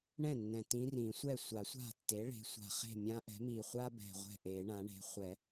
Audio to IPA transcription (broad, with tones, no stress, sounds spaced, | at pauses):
ɳ ɛ̃˥˩ nː ɛ̃˨˩ t ĩ˧˥ r ĩ˨˩˦ sʷ ɛ˥˩ sʷ a˨˩˦ sʷ a̤˥˩ tː e˩˥ ɭ e̤˩˥ sʷ a̤˨˩ χ e̤˥˩ mʲ ã˧˥ ʔ ɛ̤˩˥ m i˨˩ χʷ a˥ b ɛ̤˨˩ ʁʷ ɛ̤˥˩ ʔ e˨˩˦ ɳ ã˩˥ ɳ e̤˩˥ χʷ ɛ˨˩˦